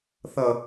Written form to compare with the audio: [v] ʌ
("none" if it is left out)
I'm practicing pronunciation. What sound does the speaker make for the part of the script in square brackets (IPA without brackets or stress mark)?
θ